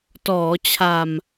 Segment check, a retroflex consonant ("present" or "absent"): absent